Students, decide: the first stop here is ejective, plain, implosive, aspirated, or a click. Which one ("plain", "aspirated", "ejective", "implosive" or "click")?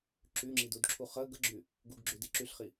click